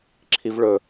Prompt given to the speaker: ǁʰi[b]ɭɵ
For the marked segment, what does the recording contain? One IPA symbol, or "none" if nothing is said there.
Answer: v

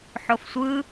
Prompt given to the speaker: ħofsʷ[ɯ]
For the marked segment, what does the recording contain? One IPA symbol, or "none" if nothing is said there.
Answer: ɯ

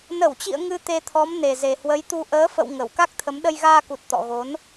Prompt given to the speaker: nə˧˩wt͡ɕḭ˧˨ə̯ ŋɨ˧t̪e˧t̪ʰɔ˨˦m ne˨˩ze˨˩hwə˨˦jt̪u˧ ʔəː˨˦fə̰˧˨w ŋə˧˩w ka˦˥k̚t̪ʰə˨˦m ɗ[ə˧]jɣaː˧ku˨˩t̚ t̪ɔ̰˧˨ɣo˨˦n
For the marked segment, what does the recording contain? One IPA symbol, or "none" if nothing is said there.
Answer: ə˧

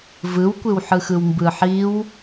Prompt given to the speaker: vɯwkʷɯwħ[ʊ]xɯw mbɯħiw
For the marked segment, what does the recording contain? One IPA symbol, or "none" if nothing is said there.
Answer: ɯ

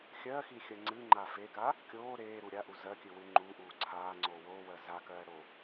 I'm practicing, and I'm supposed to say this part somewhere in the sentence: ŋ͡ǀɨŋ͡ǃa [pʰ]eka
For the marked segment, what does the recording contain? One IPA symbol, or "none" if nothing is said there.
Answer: f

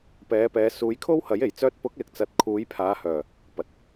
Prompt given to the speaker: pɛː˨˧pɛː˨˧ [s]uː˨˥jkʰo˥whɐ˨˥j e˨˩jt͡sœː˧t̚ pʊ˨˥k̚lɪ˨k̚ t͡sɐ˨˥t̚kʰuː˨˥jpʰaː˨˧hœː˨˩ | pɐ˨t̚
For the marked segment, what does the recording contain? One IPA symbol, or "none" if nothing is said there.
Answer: s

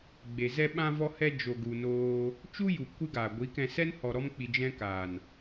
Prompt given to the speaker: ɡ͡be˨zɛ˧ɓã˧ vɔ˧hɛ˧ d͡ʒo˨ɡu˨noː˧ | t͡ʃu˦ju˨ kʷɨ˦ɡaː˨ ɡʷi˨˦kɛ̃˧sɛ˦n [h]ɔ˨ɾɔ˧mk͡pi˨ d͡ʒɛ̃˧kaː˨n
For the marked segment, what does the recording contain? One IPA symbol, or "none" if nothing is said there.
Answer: h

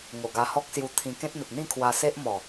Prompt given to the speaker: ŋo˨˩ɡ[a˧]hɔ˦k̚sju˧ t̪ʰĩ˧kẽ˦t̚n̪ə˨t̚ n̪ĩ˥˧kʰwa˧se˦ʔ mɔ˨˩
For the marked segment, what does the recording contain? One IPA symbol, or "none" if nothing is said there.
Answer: a˧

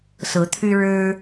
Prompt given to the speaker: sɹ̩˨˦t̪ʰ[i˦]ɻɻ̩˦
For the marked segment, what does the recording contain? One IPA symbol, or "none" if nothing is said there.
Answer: y˦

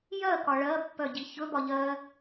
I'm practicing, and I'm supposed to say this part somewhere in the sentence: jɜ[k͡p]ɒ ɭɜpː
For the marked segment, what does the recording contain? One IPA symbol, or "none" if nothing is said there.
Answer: k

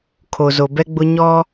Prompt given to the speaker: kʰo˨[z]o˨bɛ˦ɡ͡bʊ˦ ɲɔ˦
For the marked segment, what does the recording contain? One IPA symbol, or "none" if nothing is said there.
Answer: z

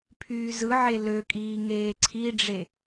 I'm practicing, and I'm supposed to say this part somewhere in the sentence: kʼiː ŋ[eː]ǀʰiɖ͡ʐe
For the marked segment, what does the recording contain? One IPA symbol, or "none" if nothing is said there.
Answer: eː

